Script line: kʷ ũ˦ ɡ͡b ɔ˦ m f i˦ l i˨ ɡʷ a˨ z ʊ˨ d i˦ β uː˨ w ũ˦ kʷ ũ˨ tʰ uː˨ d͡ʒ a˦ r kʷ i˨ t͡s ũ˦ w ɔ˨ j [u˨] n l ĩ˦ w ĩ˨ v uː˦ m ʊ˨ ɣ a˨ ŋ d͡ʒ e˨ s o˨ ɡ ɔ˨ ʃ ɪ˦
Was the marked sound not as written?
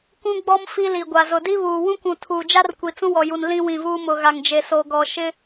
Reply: no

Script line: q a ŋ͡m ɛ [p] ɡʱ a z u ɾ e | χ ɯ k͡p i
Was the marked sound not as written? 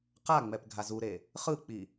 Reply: no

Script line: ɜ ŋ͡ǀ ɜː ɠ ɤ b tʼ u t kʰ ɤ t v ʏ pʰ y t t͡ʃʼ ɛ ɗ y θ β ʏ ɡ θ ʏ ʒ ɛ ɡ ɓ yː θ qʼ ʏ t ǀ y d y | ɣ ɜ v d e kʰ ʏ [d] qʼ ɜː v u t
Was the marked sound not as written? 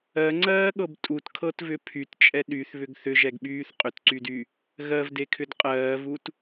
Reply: no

